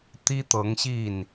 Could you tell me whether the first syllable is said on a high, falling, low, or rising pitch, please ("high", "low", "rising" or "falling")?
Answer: high